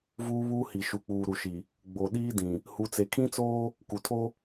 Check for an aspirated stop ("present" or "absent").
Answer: present